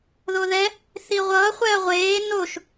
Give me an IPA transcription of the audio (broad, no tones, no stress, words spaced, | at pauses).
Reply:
ðoðɛ | θiʁʷʌː χʷɛɐ̯ʁʷeː noʃ